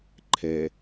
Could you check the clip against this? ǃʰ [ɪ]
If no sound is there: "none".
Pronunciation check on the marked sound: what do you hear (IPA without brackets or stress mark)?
ɛ